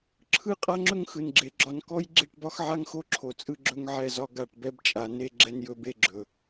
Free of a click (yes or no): no